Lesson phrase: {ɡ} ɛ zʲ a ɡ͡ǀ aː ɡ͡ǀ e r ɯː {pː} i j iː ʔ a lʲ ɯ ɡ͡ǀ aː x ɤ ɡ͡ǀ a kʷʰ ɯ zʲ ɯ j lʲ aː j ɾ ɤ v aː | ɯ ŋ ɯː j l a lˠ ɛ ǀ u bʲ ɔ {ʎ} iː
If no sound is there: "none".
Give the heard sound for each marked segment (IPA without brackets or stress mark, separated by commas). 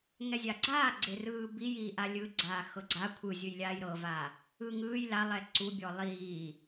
ŋ, b, lˠ